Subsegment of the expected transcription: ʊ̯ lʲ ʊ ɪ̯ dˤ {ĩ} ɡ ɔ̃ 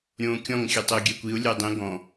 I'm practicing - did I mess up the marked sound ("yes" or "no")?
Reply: no